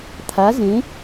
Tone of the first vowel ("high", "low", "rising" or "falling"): rising